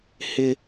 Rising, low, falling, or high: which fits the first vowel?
high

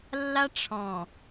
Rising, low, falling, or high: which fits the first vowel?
high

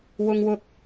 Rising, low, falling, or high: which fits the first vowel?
high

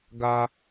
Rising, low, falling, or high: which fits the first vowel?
high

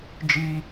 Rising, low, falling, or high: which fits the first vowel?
high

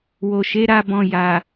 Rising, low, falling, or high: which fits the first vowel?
low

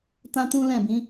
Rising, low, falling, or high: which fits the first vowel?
high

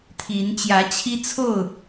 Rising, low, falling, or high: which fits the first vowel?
rising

